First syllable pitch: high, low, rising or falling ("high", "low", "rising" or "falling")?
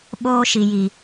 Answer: high